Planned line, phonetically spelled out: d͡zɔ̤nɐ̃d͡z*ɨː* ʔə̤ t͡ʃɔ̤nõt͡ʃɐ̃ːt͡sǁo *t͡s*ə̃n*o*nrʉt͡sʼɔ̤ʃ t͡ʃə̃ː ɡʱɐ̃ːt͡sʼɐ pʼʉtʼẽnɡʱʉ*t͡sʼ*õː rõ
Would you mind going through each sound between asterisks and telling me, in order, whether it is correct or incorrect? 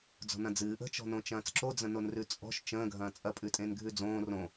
correct, incorrect: d͡z, correct, incorrect: d͡z

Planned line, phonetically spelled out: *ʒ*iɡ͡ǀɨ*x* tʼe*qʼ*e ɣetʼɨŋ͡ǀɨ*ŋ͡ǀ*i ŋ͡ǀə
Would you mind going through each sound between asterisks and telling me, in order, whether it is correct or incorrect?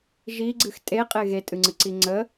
correct, correct, correct, incorrect: ǀ

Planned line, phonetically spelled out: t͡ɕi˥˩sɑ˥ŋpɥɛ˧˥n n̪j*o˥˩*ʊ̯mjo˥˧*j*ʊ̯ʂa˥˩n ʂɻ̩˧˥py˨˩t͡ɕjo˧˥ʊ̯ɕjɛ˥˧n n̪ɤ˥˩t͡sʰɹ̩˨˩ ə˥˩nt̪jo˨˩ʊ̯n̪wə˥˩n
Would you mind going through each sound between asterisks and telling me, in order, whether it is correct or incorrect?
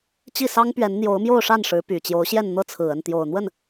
incorrect: o˧˥, incorrect: none

